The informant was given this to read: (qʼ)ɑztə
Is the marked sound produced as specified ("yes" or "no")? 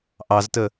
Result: no